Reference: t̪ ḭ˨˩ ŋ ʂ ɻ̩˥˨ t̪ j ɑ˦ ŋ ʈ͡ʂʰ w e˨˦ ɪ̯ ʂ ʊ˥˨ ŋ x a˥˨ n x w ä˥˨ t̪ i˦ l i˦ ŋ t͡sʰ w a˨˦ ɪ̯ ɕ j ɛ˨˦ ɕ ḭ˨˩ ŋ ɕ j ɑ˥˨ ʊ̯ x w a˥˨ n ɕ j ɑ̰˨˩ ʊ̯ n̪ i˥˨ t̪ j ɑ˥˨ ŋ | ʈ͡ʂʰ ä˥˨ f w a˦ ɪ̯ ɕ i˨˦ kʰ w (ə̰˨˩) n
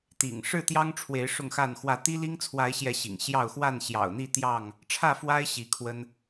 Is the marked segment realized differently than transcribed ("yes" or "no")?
yes